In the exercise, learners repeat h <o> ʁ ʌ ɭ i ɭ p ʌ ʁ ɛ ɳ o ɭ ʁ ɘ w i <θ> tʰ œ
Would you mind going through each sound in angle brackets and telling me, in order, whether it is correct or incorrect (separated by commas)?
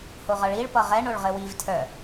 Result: correct, incorrect